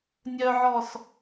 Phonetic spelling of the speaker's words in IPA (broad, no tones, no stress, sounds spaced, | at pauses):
nʲ œ ʕ ɔ s